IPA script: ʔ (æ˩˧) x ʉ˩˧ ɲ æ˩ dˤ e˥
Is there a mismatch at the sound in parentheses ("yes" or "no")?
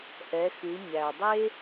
yes